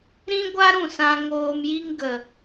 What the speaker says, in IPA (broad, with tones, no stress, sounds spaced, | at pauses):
ɾ ĩ˦ ɡʷ a˦ ɾ ũ˦˨ s ã˧ ŋ oː˧ m j i˦ ŋ ɡ ə˨